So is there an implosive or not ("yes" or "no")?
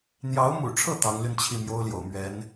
no